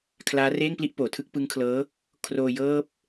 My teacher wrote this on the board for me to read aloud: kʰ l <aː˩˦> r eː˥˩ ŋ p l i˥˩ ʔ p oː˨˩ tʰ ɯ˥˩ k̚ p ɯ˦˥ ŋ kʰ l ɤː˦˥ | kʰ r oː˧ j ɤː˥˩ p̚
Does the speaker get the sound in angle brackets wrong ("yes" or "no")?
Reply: yes